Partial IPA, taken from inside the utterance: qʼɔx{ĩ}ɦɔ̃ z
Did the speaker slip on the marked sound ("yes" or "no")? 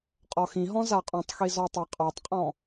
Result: no